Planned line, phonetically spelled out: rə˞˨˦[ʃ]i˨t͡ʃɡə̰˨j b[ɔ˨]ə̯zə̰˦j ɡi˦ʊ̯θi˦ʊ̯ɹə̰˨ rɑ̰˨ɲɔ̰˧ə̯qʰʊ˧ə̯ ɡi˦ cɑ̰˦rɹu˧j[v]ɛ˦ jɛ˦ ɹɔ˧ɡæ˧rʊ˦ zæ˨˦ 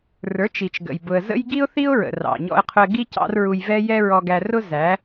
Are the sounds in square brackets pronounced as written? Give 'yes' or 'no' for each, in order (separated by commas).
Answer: no, no, yes